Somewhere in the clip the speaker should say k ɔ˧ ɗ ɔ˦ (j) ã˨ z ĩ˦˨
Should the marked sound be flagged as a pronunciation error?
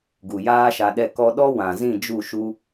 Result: yes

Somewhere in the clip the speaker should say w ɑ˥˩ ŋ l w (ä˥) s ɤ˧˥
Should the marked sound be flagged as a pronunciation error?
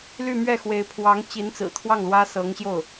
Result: no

